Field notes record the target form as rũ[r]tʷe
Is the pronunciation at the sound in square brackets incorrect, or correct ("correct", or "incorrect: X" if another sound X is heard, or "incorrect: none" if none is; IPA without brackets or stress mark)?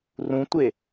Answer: incorrect: none